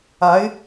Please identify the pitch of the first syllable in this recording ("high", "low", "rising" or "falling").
rising